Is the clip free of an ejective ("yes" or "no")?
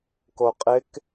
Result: no